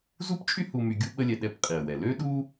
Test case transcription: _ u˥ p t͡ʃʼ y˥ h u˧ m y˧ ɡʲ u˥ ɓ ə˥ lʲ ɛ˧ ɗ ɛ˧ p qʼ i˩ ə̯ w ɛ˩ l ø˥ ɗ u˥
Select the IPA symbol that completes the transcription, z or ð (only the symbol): z